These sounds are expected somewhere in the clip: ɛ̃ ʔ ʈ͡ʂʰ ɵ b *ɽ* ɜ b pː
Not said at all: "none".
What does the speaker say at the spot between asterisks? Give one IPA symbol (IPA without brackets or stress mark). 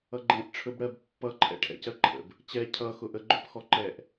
ɽ